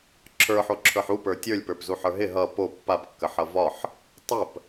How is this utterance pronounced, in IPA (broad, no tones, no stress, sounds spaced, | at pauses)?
ǁʰ ə˞ ħ o ǁʰ ə˞ ħ u p ə˞ tʲ ə˞ lʲ p ə˞ p z u ħ ə˞ ɦ ɪ ɦ ʌ p o pː a p kː ə ħ ʌ v ɒ ħ | tˤ ə p